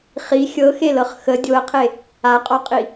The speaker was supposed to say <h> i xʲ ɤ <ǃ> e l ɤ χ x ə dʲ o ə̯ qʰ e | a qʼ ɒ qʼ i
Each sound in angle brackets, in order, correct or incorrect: incorrect: χ, incorrect: x

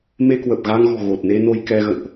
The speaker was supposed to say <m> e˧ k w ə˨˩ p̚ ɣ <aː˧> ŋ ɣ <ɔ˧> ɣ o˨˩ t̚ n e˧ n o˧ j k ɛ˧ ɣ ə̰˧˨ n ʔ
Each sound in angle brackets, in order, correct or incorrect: correct, incorrect: a˧, incorrect: ɔ̤˨˩

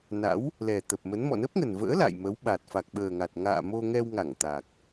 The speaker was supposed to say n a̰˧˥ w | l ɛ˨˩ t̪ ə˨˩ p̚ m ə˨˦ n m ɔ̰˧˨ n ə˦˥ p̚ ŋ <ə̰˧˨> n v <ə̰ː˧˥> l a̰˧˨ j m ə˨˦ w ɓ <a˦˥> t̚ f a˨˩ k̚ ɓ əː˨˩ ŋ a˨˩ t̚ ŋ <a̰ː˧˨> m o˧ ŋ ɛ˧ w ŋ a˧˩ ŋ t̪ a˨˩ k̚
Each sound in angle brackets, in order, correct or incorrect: incorrect: ə˨˩, correct, incorrect: a˨˩, correct

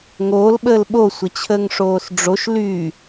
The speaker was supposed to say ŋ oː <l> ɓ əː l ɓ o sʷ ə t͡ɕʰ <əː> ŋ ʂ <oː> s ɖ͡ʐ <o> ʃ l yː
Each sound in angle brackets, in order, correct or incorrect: correct, correct, correct, correct

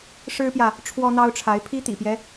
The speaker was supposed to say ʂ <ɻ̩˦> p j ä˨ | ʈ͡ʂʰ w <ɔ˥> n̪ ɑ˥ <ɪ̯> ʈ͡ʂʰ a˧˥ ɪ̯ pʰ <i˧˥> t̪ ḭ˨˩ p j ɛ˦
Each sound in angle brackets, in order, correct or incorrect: incorrect: ɻ̩˥, correct, incorrect: ʊ̯, incorrect: i˥

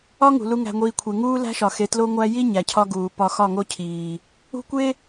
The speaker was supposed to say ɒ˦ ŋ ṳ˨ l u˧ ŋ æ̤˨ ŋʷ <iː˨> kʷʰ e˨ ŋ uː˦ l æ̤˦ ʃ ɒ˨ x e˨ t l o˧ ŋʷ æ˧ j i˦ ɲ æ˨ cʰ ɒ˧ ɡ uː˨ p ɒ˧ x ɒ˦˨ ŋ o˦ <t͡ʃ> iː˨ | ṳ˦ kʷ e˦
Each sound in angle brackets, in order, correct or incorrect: correct, incorrect: cʰ

